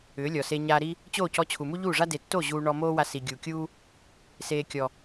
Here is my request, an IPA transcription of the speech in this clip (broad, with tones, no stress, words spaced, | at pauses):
ʏː˨˦lʲɔ˨se˧ ɲa˧ɾi˦ | t͡ɕo˦˨cɔ˧ t͡ɕʰu˨mu˦ʎuː˦˨ʐa˦ de˨tːo˦˨ ʑuː˧ ɳɔ˧moː˦wa˧ si˨ɡʲu˨kʲuː˦ | seː˨kʲɔ˨